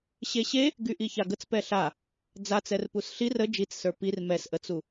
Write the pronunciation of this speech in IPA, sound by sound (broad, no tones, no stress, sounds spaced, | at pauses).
ɕ e ɕ e | ɡ y ʔ i ç a ɡ ə t͡s p ɛ ɬ a | d͡z a t͡s ɛ r p u s ɬ i r ə d͡ʒ i t͡s s ə˞ p i r m ɛ s ʔ ə t͡s u